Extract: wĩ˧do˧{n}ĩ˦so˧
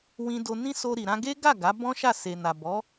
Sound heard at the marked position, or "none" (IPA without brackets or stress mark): n